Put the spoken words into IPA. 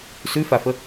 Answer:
s ʉ f a f ə

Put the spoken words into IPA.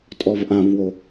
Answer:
tʼ ɔ v ʔ ã v w o

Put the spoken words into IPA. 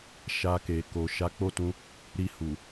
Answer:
ʃ a˧ k e˨ k o˨ ʃ a˨˦ k͡p o˦˨ t ũ˧ | ɾ i˧ h u˨

